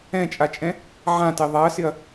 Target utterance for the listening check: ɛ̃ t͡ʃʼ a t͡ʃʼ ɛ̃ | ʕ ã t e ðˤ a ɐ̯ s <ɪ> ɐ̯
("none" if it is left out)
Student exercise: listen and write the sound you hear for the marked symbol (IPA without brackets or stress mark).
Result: ɪ